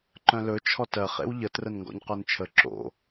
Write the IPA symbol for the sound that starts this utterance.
ǃ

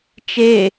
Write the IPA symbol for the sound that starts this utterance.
t͡ʃ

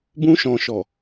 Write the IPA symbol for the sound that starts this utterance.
b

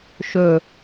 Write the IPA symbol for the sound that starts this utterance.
ʃ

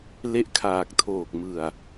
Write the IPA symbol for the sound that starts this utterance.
l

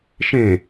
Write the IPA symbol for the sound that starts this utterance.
ʃ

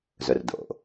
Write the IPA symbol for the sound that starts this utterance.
z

